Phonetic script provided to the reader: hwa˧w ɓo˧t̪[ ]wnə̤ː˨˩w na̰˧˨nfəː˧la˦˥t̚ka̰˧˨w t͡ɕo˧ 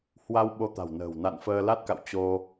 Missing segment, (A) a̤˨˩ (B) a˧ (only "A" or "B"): A